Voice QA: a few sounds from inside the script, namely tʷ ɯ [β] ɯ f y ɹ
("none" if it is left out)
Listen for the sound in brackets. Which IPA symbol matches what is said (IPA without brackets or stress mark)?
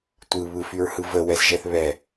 β